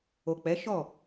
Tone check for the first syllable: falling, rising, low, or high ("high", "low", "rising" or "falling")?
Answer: low